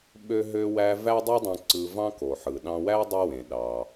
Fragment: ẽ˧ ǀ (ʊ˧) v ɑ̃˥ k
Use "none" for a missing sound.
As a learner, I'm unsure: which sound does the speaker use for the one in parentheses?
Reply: ɯ˧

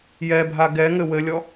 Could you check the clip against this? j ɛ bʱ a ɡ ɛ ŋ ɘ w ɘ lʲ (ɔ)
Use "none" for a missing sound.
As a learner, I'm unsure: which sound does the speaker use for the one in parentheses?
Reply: ɔ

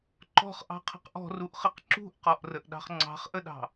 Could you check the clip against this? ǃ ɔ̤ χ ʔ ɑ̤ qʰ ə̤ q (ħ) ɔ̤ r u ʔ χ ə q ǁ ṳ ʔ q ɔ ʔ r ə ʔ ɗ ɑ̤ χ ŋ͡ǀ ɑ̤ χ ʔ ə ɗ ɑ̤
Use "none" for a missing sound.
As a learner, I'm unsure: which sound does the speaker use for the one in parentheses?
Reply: ʔ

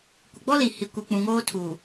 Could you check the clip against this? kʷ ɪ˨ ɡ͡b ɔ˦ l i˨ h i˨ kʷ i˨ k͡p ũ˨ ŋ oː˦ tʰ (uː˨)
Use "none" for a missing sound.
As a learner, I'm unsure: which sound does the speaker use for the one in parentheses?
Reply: uː˨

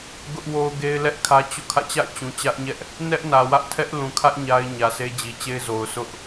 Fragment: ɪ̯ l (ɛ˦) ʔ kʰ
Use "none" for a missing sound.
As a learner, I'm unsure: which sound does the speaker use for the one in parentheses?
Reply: ɛ˦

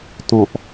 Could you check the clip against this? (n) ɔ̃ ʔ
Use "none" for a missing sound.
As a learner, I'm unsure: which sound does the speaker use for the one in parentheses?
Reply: t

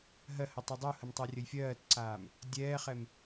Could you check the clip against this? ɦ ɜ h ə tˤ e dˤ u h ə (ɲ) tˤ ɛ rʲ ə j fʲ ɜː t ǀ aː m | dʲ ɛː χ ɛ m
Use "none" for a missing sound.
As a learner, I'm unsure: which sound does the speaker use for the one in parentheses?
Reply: m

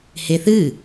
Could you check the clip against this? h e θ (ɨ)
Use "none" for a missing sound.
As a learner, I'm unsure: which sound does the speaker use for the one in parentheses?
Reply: ɨ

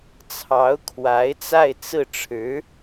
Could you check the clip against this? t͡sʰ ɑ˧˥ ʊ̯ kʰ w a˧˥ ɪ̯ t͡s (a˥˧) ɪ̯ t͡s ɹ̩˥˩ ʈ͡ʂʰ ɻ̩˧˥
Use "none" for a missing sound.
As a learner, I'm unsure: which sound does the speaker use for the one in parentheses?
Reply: a˥˧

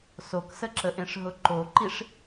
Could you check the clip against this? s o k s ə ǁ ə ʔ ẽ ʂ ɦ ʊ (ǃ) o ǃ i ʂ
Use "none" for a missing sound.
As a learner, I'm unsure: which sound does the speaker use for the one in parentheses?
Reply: ǃ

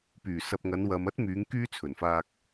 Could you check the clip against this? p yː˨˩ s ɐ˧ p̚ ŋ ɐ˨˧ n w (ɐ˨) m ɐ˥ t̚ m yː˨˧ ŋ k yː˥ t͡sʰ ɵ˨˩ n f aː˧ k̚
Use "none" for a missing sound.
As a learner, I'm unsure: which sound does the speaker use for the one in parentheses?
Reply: ɐ˨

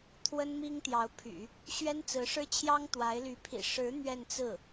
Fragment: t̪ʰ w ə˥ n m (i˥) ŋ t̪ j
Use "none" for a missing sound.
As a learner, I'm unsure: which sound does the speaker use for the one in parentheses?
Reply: i˥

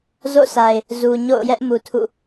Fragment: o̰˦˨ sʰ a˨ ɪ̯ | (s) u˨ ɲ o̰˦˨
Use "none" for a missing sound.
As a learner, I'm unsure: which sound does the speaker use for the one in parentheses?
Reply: z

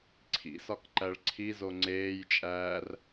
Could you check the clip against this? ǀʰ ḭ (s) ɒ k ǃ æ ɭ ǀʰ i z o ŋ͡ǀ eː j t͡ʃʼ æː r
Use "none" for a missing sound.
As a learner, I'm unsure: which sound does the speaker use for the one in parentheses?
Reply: s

